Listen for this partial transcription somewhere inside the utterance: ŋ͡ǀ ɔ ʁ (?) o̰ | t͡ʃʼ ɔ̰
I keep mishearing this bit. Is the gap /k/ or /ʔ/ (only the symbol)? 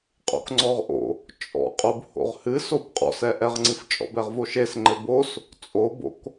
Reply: ʔ